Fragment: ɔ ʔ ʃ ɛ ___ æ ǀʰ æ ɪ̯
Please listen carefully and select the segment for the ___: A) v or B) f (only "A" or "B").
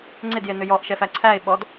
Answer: B